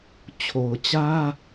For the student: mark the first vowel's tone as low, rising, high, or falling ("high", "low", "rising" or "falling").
low